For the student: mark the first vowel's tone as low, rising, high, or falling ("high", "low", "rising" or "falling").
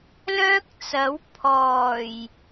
high